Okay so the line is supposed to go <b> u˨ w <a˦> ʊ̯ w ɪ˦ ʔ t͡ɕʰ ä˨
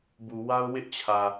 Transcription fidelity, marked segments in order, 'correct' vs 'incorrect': correct, correct

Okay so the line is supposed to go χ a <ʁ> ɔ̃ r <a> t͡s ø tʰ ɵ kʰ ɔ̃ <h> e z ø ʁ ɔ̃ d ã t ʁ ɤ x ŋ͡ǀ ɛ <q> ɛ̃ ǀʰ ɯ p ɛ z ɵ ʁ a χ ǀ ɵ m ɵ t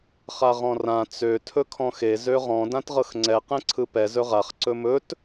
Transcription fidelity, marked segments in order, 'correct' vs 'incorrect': correct, incorrect: ã, incorrect: x, correct

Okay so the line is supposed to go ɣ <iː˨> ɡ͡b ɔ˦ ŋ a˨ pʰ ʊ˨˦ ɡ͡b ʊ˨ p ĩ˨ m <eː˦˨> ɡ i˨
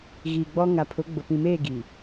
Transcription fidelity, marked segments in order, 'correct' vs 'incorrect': correct, correct

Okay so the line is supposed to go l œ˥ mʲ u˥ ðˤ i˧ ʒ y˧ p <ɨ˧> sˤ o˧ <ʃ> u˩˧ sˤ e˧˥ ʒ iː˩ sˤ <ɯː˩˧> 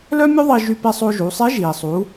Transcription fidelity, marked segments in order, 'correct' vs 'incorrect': incorrect: e˧, incorrect: ʒ, incorrect: uː˩˧

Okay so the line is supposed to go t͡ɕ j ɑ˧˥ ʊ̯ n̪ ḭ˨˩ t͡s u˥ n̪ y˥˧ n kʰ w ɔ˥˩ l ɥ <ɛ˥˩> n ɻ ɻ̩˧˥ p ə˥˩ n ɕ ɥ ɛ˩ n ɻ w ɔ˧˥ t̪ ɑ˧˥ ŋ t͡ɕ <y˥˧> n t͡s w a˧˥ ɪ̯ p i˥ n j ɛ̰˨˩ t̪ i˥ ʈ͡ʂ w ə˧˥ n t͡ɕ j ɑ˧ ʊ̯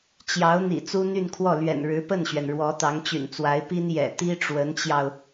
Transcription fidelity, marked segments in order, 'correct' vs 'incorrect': incorrect: ɛ̰˨˩, incorrect: y̰˨˩

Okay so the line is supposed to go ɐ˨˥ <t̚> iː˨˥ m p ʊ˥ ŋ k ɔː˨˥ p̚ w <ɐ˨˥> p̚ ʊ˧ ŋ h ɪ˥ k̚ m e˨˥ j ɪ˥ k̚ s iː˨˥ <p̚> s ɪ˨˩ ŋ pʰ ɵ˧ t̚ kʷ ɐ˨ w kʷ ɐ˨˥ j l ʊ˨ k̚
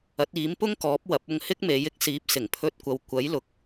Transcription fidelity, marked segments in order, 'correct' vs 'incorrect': correct, correct, correct

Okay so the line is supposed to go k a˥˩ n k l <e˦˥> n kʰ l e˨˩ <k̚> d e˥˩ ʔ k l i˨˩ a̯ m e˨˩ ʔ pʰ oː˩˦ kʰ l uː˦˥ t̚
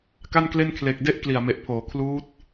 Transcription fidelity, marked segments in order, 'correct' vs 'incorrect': incorrect: e˥˩, correct

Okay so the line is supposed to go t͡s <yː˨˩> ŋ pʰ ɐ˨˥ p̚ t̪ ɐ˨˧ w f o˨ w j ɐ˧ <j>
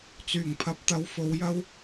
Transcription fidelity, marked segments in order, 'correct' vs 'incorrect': correct, incorrect: w

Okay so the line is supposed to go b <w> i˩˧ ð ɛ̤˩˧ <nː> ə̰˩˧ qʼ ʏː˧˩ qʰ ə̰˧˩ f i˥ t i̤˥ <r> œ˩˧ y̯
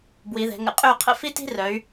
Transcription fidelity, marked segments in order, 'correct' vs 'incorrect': correct, incorrect: ŋ, correct

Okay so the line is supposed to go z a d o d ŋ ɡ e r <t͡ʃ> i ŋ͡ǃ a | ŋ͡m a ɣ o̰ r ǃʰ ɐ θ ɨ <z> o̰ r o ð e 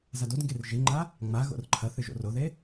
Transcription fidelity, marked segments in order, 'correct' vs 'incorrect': incorrect: ʒ, incorrect: ʒ

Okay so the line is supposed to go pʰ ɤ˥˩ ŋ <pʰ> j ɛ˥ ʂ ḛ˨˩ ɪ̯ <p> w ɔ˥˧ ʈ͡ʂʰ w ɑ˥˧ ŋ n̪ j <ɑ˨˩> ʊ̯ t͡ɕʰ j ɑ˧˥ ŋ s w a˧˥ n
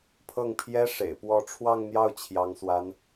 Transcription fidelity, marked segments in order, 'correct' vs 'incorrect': correct, correct, incorrect: ɑ˥˩

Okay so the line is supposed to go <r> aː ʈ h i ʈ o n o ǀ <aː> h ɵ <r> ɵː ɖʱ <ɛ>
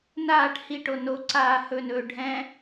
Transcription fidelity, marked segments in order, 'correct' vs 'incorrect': incorrect: n, correct, incorrect: n, incorrect: ɛ̃

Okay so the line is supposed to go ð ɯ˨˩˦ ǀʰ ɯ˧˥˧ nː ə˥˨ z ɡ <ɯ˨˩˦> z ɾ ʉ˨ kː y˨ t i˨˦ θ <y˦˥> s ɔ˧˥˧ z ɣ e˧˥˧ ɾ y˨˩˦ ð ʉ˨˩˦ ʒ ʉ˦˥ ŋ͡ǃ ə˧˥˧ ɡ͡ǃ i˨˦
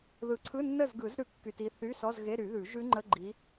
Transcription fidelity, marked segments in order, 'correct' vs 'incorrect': correct, incorrect: y˧˥˧

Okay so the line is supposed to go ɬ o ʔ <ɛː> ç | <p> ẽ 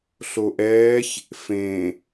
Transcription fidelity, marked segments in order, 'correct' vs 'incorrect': correct, incorrect: f

